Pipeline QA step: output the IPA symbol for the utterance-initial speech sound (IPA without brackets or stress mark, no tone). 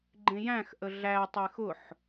ɡ͡ǃ